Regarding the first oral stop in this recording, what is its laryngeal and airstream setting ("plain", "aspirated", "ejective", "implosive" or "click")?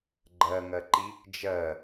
click